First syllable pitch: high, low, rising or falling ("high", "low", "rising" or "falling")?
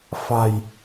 low